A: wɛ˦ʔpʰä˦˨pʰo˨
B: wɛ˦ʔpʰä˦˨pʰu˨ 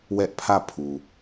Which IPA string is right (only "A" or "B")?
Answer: B